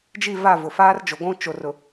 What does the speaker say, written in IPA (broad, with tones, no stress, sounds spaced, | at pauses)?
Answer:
d͡ʒ i˦˨ v a˦˨ v ʊ˨ f aː˦ r d͡ʒ o˨ ɡʷ ũ˦ t͡ʃ o˨ r ʊ˨